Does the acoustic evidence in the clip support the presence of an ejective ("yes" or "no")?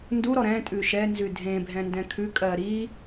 yes